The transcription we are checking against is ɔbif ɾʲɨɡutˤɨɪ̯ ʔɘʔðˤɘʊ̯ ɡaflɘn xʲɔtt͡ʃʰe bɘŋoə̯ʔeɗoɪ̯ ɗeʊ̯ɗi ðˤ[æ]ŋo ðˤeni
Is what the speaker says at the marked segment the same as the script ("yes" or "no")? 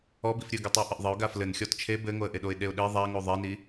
no